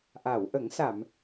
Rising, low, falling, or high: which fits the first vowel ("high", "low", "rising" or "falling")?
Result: low